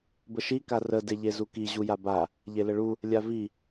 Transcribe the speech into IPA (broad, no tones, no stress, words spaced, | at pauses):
bəʃi karə deʎezuki ʑujaba | ʎeləɭu | lʲavi